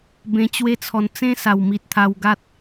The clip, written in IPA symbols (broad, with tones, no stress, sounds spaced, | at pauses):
b ẽ˧ t͡ɕ w e˦ t͡sʰ ɔ˧ n t͡s ẽ˦ s a˨˩ w m i˨ t̚ t̪ʰ a˧ w ɡ a˦ t̚